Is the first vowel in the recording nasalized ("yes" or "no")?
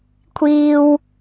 no